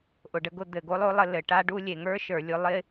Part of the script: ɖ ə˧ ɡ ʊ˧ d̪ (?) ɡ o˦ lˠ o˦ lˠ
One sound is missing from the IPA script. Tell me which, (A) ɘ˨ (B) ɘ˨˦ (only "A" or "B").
A